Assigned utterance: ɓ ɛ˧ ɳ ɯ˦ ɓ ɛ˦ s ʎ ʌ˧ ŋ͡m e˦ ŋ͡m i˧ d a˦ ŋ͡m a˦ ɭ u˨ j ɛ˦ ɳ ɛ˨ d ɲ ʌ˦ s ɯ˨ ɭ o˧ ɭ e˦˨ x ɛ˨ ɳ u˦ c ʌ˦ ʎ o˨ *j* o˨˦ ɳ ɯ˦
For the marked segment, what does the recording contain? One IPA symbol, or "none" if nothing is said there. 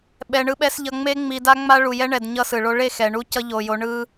j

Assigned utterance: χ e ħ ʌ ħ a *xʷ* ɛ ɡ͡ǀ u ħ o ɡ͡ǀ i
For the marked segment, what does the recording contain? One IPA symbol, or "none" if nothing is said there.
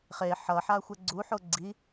xʷ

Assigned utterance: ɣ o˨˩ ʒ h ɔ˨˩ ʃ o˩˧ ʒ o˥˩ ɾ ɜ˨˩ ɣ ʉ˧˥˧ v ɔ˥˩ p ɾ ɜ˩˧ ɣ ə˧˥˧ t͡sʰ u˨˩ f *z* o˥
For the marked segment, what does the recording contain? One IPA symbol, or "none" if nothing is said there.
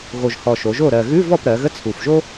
ʒ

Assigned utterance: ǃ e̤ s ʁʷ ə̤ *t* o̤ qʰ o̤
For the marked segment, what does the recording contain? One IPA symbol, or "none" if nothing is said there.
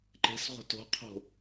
t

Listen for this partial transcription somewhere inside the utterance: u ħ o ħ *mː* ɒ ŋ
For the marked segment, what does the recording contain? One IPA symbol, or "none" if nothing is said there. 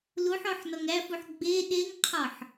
n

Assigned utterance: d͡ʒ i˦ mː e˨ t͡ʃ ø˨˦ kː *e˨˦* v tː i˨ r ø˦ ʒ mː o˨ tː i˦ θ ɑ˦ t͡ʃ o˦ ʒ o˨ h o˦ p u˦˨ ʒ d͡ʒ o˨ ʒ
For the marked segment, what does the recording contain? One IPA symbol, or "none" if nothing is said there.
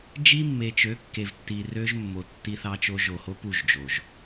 e˨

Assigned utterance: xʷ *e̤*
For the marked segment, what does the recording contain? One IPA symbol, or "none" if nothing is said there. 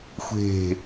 e̤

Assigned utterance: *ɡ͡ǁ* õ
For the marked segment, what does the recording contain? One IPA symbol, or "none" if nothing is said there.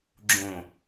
ɡ͡ǁ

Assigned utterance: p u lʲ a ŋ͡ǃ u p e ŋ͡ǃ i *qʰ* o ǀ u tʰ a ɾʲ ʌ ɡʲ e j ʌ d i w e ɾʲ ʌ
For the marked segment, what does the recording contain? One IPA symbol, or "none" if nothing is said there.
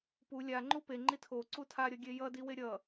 tʰ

